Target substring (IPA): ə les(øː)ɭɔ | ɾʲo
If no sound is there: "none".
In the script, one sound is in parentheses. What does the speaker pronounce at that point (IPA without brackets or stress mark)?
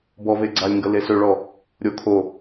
ø